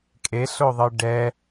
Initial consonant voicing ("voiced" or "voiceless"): voiceless